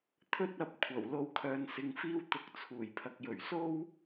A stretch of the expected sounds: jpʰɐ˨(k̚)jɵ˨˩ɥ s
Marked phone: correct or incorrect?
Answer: correct